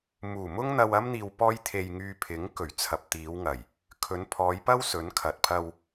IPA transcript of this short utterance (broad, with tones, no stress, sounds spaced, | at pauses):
m uː˨˩ m ʊ˥ ŋ n̪ ɐ˧ w ɐ˥ m n̪ iː˧ w p ɔː˥ j t̪ʰ e˧ j ŋ yː˧ pʰ ɪ˨˥ ŋ k ɵ˨˩ ɥ t͡sʰ ɐ˨ p̚ t̪ iː˨˧ w ŋ ɐ˨˩ j | kʰ ɵ˨˧ n pʰ ɔː˨˧ j p ɐ˥ w s ɵ˨˥ n kʰ ɐ˨ t̚ pʰ ɐ˧ w